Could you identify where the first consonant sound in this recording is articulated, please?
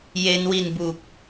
palatal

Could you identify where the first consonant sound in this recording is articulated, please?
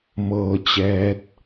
labial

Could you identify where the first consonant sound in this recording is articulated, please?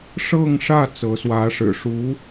retroflex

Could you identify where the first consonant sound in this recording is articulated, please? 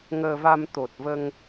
velar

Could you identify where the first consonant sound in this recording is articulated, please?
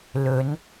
alveolar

